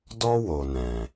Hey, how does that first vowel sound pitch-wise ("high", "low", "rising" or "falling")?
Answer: high